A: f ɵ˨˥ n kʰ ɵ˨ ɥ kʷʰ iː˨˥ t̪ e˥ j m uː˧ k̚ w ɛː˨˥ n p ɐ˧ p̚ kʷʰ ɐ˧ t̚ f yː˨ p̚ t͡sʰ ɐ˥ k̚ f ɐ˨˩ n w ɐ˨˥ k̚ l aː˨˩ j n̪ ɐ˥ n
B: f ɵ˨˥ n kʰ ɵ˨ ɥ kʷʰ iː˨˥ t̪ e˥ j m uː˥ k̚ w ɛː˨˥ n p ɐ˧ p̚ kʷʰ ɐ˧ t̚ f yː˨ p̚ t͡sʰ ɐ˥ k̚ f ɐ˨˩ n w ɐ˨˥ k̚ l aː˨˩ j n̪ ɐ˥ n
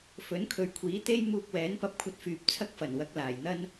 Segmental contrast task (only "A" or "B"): A